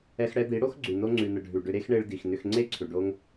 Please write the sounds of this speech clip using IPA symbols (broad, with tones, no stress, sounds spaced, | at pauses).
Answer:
ɛ˧ x ɽ ɛ˧ d̪ i˨˦ ɽ o˦ x ɡ͡ǀ ʉ˨ n o˧ ŋ͡ǀ ʉ˨ n ə˨ ɖʱ ʉ˨ ɖ ʏ˧ ɾ e˦ x ɳ e˧ ɭ d i˨ x n ʏ˧ x ŋ͡ǀ e˦ ǀʰ ʏ˨ ɖ o˧ ŋ